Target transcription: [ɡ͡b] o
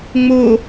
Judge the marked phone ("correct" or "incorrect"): incorrect